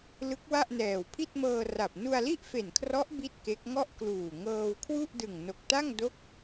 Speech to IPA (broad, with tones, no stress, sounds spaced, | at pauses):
l ɯ˦˥ k̚ w a˥˩ ʔ n ɛː˨˩ w pʰ i˥˩ t̚ m ɤː˧ r a˨˩ p̚ n u˧ a̯ l i˥˩ ʔ f e˨˩ n kʰ r ɔ˦˥ ʔ b i˥˩ t̚ k e˦˥ k̚ ŋ ɔ˥˩ ʔ k l uː˨˩ ŋ ɤː˧ w kʰ w u˥˩ ʔ d ɯ˨˩ ŋ n o˨˩ k̚ t a˥˩ ŋ d o˦˥ k̚